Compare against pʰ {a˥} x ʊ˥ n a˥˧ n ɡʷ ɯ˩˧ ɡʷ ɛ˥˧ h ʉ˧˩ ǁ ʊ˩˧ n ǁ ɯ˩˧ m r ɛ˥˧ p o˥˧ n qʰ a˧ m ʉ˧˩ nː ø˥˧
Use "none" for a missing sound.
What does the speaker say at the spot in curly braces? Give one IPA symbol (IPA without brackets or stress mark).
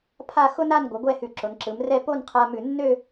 a˥˧